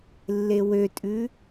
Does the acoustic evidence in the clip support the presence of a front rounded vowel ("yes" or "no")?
yes